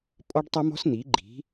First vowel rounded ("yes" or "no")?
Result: yes